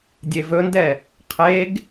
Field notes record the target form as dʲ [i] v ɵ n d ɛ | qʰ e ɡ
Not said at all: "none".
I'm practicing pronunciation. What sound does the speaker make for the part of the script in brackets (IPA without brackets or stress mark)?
e